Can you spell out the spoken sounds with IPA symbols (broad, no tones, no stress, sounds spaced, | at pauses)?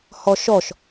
h ɔ ʃ ɔ ʃ